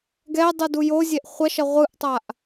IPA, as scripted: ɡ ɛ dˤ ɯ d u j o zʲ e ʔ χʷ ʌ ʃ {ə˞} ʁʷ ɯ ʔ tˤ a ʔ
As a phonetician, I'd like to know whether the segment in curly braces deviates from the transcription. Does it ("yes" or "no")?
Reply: yes